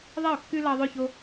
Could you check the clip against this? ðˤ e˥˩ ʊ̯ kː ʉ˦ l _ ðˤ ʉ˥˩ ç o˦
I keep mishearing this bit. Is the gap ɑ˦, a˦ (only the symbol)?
ɑ˦